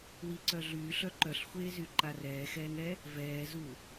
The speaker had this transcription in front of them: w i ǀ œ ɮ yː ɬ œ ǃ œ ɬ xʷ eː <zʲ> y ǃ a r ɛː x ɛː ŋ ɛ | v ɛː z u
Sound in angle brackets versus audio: incorrect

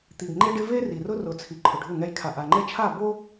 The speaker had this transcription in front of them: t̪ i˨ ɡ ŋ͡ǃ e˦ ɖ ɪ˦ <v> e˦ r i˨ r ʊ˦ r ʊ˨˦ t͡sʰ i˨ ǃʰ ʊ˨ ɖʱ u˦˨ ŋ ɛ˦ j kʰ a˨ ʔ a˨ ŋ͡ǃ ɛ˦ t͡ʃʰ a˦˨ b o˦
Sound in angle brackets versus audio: correct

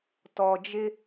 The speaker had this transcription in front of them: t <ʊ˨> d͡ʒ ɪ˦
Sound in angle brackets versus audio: incorrect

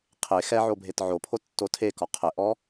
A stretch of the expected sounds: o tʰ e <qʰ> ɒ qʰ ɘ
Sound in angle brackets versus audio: incorrect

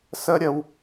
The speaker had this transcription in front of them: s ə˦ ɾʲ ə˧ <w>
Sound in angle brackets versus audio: correct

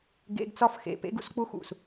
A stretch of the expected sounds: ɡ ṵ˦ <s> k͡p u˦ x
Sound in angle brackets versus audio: correct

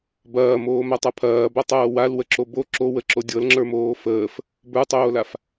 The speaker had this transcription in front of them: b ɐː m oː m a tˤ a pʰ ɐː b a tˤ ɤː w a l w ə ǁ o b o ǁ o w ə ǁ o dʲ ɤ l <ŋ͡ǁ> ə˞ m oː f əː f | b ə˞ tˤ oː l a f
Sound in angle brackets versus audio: correct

